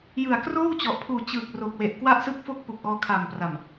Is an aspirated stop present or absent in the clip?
present